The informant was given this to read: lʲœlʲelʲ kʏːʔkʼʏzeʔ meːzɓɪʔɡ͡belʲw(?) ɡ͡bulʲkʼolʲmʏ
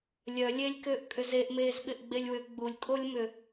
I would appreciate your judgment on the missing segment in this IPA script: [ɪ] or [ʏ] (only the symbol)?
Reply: ʏ